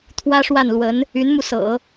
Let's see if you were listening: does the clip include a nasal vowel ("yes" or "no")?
no